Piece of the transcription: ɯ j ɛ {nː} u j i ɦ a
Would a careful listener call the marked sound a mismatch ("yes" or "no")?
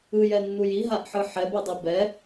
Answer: no